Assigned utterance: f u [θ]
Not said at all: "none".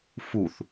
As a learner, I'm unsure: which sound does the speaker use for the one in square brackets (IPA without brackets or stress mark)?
θ